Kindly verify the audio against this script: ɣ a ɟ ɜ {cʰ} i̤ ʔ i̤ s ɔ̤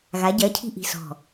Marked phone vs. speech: correct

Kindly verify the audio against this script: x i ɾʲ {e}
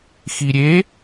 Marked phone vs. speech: correct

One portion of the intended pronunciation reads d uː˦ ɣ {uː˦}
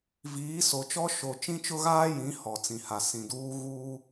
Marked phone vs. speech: correct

